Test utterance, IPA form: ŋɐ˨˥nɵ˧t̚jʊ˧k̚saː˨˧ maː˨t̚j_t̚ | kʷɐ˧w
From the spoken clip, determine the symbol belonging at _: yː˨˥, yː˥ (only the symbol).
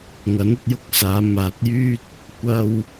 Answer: yː˥